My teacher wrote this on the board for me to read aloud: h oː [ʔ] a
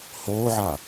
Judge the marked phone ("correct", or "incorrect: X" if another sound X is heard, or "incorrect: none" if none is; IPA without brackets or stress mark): incorrect: ʕ